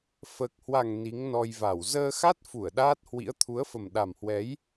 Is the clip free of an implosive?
no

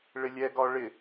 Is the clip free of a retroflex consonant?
no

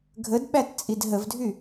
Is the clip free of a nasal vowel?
yes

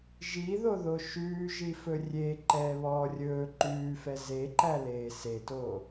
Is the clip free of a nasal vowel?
yes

